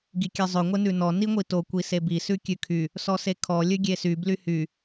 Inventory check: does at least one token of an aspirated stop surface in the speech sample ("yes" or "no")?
yes